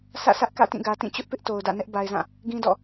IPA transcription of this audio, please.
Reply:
sʰ ä̰˦˨ sʰ ä˦ ʔ k ä̰˦˨ t ĩ˦˨ ɡ ä˨ t ĩ˦˨ t͡ɕ ʊ˦ ʔ p ɪ˦ ʔ t o˨ ʊ̯ d ä̰˦˨ n ɛ˦ ʔ b a˨ ɪ̯ z ã˦˨ | ɡ ĩ˦ d ɔ̰˦˨

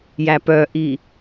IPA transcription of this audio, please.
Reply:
j æ p œ ʔ i

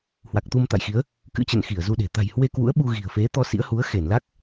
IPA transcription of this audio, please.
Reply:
h w a˨˩ k̚ t̪ u˧ m t̪ a̰˧˨ j x i˨˦ ə̯ | k ɨ̰˧˥ t͡ɕ ə̰˧˨ n x i˧˩ ə̯ z u˧ ɗ e̤˨˩ t̪ a̤˨˩ j h w e˧ k w ṵ˧˥ ə̯ ɓ u˧ ɣ i̤˨˩ ə̯ f e˨˦ t̪ ɔ˧ s ḭ˧˥ ə̯ h u˨˦ ə̯ x e˧˩ n l a˦˥ k̚

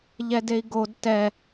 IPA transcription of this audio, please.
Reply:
ʎ ɛ d e i̯ ɡ o d t ɛ

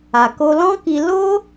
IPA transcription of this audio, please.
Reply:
a˨ k o˧ l ɔ̃˦ k i˧ l o˦

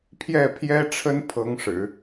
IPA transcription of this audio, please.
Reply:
pʰ j ɛ˥˩ pʰ j ɛ˥ ʈ͡ʂʰ ə˥ n pʰ ɤ˧˥ ŋ ʂ ɻ̩˨˩˦

